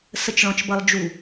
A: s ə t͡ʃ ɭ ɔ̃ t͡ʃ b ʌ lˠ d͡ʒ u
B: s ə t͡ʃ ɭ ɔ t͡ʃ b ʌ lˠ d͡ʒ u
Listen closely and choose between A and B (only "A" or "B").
A